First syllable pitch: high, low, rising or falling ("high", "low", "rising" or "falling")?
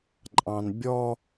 low